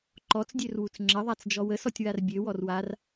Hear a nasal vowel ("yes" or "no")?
no